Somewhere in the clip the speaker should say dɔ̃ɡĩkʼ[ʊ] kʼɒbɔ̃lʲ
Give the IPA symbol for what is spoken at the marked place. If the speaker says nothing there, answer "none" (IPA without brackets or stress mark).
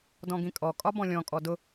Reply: ɔ